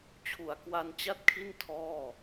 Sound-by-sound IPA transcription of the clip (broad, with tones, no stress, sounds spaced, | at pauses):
t͡ɕʰ u˩˦ a̯ k w a˧ n t͡ɕ a˥˩ t̚ kʰ i˥˩ n tʰ ɔː˥˩